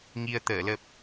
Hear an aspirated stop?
no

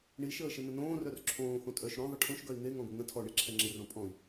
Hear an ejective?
yes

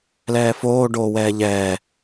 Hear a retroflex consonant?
yes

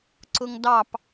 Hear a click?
yes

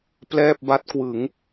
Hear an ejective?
no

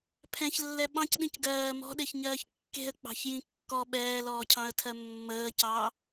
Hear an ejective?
no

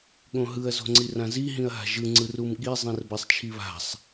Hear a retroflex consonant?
no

